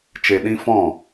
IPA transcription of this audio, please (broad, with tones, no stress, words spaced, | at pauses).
t͡ʃe˨ɗĩ˧ fɔ̃˦˨